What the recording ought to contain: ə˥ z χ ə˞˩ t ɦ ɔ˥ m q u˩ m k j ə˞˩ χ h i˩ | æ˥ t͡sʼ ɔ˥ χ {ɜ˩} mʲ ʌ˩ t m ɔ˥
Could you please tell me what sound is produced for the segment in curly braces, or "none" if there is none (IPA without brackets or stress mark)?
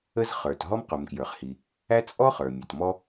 ə˞˩